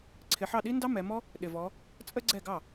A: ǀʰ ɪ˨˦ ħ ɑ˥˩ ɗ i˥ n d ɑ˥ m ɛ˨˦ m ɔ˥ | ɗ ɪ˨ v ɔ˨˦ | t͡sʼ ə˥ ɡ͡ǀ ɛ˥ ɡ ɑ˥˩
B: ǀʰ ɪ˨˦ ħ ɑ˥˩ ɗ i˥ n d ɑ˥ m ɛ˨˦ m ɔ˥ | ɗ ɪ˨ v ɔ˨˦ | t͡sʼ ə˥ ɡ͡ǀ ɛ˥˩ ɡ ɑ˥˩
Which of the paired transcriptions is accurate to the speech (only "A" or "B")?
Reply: B